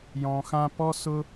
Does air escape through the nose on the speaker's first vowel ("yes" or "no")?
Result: yes